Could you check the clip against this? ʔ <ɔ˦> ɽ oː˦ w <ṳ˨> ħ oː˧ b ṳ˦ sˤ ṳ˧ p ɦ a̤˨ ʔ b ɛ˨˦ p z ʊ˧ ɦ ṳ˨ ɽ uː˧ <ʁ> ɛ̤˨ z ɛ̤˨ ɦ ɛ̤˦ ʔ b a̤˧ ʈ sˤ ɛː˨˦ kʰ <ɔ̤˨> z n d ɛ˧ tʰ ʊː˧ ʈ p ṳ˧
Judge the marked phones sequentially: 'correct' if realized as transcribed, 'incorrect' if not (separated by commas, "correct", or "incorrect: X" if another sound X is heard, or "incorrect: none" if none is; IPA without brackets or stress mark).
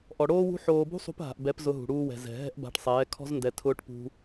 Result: incorrect: ɔ˨, incorrect: ṳ˦, incorrect: w, incorrect: ɔ̤˦